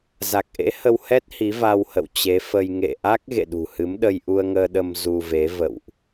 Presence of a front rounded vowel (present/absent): absent